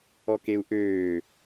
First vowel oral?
yes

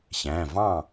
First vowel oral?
no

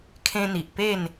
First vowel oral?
no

